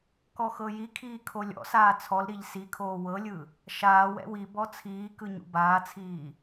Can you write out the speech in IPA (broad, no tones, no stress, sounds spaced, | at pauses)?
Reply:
k ɔ x ɤ j i kʰ iː kʰ o lʲ ɔ̰ s aː t͡sʰ ɔ l ɾ i ʎ s i kʰ oː w ɤ lʲ ɯ | ʃ aː w ɛ̰ w i b ɔ t͡sʰ iː k ɯ ɲ ṵ b aː t͡sʰ iː